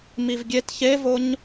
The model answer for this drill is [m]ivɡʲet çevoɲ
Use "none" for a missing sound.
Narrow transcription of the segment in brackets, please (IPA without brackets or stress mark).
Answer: m